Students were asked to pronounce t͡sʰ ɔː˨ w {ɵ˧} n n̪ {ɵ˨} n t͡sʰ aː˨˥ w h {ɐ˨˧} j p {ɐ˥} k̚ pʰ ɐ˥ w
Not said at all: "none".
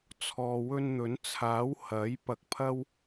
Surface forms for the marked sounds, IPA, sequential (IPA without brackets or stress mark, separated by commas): ɵ˧, ɵ˨˥, ɐ˨˥, ɐ˧